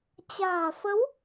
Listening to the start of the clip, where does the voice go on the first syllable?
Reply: low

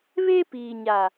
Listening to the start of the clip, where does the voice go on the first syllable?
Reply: high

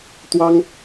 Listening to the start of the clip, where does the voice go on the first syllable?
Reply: high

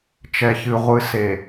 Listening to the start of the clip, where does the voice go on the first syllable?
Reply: low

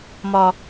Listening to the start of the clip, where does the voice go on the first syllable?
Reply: low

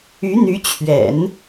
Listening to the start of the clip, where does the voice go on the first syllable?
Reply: rising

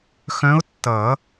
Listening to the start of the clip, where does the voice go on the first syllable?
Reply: rising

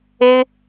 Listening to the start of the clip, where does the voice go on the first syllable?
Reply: high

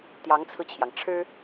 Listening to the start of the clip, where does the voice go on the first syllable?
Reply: rising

